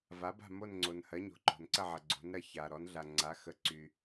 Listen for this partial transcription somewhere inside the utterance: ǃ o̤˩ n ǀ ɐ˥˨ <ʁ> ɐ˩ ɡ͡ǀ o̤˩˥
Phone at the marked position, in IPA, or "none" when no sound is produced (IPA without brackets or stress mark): ʕ